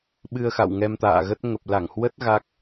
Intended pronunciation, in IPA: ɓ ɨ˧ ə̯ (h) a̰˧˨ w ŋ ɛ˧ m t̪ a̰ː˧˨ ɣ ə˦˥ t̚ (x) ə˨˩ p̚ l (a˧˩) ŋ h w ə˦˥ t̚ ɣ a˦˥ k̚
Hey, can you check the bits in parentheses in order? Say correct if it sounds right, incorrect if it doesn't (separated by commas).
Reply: incorrect, incorrect, correct